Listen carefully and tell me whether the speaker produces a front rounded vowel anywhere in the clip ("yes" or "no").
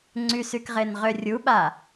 yes